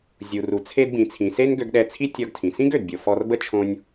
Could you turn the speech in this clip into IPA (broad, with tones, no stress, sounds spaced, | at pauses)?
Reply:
zʲ u˩ r u˩ t͡sʰ e˧ d b ĩ˩ t͡sʰ ĩ˩ s e˥ n ɡ ø˧ ɡ ɗ ɛ˧ t͡sʰ i˥ tʲ ɔ˧ ɡ tʰ ĩ˩ s ĩ˥ ɡ ø˩ d bʲ o˩ f ɔ˧ r b ə˥ t͡ʃʰ õ˧ nʲ